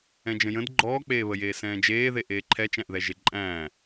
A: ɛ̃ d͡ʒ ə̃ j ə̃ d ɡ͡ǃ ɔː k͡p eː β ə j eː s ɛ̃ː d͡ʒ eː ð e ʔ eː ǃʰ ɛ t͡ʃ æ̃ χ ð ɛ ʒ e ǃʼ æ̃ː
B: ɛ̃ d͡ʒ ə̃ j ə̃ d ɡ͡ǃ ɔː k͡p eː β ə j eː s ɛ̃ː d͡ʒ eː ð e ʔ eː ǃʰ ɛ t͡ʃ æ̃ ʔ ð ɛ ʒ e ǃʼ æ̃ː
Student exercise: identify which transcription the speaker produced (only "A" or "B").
B